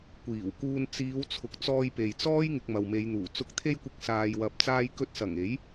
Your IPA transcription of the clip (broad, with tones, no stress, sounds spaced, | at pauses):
kʷ iː˨˩ w k uː˧ n t͡s iː˨˧ w t͡sʰ ʊ˨˥ k̚ t͡s ɔː˧ j p e˨ j t͡s ɔː˥ j ŋ ɪ˧ k̚ m ɐ˨ w m e˨˧ j n̪ uː˨˩ t͡s ʊ˨˥ k̚ t̪ʰ e˧ j kʷ ɪ˨ k̚ s aː˧ j w ɐ˧ p̚ t͡s aː˧ j k ɵ˧ t̚ s ɐ˨˩ ŋ e˨˥ j